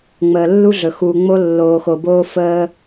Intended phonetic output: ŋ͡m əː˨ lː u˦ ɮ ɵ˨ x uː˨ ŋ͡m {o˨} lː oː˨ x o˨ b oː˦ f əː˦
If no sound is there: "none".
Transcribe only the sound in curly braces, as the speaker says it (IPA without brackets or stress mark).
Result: o˦